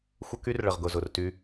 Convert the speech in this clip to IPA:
xʷ ə˦ k y˦ r ɭ ə˨ ʁ ɡ ʊ˨ z ʊ˨ r t y˦

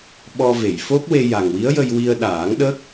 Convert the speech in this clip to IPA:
ɓ ɔ˧ v e˨˩˨ j f o˦˥ k̚ w e˧ j a˨˩ ŋ w i˧˥ ə̯ j ə˧ j w i˧ ə̯ ɗ aː˨˩˦ ŋ ɗ ə˦˥ k̚

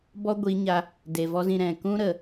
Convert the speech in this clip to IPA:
b ɔ˦ ɡʷ i˨˦ ɲ a˧ | d e˨ v ɔ˦ z ĩ˧ ɾ ɛ̃˨ k ũ˦ ɾ ə˨

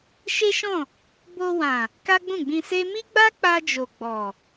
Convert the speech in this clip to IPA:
ʃ e˦ ʃ ɔ̃˦˨ | b o˧ w ã˨ | k a˦ ɡ͡b ũ˦˨ ɡ͡b ĩ˧ s e˦ m i˦ ɡ͡b a˦ k͡p a˧ d͡ʒ o˨ ɡ͡b ɔ˨

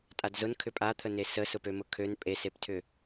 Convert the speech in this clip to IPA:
tʼ a d z ʊ n kʰ ʏ pʼ a t̪ʰ ə n e s ə s ʊ p ø m ʊ kʰ ø n pʼ e s e p tʰ ʏ

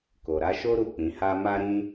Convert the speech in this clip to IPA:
k o˨ ɾ a˨˦ ʃ o˦ ɾ u˦˨ k͡p ĩ˨˦ h a˦ m a˦ ɾ ĩ˦

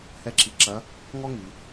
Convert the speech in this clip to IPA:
h ɛ˥ ǁ i˧ ǁ ɐ˧˥ | ŋ ɔ˥ ŋ i˩˧

